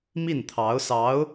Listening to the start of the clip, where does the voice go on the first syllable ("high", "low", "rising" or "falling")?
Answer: falling